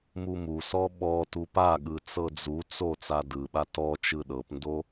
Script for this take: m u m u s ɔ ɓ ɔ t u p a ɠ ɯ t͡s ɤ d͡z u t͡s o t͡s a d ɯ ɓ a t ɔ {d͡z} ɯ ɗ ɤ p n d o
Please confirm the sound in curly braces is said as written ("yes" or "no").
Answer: no